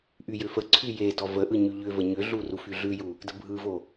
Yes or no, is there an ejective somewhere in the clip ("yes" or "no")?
no